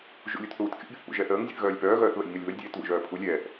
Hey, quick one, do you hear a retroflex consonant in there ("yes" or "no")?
no